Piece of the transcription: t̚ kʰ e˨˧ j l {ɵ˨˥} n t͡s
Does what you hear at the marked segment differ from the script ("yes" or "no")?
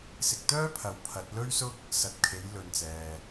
yes